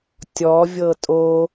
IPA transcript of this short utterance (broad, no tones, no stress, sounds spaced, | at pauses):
tʲ ɔ vʲ ɤ tʼ o